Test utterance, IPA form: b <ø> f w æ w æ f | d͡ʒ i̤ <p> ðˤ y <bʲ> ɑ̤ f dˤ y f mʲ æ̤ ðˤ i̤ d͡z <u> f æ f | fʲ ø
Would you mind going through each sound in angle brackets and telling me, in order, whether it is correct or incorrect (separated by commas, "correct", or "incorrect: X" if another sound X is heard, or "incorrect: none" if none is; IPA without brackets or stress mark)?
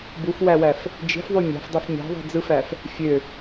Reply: incorrect: u, incorrect: f, incorrect: mʲ, incorrect: ɯ